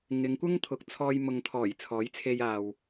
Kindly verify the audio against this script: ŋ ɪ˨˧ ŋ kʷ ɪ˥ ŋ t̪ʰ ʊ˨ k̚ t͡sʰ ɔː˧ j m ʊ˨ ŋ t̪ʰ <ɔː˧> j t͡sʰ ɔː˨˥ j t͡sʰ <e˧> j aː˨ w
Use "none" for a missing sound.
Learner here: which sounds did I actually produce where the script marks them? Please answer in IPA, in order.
ɔː˨˩, e˧

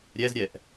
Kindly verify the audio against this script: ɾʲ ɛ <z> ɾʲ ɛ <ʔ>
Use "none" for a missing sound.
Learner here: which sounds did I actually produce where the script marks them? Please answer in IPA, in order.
z, ʔ

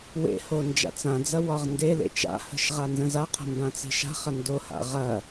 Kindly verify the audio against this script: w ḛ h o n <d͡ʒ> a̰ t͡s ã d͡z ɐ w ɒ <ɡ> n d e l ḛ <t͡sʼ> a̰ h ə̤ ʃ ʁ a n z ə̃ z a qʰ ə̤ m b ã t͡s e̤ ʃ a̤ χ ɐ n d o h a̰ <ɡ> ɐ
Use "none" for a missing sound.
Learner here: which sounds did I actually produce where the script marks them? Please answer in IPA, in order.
d͡ʒ, ʁ, t͡ʃ, ʁ

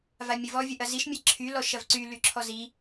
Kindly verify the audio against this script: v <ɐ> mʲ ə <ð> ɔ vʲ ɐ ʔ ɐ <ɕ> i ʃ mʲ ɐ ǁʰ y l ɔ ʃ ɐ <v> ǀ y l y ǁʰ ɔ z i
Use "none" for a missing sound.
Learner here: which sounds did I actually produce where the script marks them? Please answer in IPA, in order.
a, v, z, v

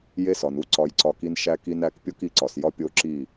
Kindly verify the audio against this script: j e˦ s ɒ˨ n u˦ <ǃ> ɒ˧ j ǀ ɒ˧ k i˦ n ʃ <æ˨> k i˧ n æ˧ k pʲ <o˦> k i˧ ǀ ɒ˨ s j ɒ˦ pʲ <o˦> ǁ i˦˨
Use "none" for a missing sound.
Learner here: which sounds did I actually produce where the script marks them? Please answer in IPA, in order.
ǀ, æ˧, o˦, o˦

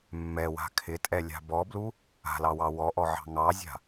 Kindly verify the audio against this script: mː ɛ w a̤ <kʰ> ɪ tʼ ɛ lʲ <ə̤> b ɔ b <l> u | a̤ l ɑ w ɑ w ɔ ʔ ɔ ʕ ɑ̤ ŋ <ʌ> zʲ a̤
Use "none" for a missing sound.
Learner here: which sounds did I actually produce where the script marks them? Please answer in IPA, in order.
kʰ, a̤, l, ɑ

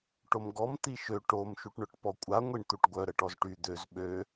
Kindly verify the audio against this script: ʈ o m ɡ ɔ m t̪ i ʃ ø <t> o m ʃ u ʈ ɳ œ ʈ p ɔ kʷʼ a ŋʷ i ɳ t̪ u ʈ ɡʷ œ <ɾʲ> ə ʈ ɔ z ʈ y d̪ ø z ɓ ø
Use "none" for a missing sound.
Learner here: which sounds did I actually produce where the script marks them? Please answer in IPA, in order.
ʈ, ɾ

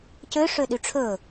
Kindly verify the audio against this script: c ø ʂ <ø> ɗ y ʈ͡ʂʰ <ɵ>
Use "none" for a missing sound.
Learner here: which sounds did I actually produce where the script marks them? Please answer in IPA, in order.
ø, ɵ

